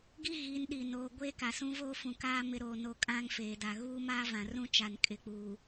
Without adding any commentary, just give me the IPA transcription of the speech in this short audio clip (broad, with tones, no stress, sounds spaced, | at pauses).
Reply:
ɡ i˦ ɣ i˨˦ n ɗ i˨ n oː˨ ɡʷ eː˦ k a˨ s ũ˦ v oː˦ f ũ˨ k aː˦ m ɪ˦ ɾ oː˦˨ n o˦ kʼ ã˦ ŋ f eː˨ d a˨ ɣ uː˦ m aː˦ v ã˨ r ũ˦ t͡ʃ a˨ n kʼ ɪ˨ k͡p uː˨